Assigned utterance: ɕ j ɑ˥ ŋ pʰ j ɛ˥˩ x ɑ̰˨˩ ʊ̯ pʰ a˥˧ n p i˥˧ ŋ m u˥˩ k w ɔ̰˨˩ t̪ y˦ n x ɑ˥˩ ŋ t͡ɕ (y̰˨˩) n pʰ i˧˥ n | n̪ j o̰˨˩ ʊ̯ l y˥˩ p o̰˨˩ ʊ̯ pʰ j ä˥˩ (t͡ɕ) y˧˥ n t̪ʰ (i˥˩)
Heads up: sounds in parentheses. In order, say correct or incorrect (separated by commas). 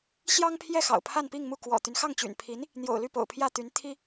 correct, incorrect, incorrect